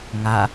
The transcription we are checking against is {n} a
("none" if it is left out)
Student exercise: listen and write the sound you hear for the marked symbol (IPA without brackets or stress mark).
ŋ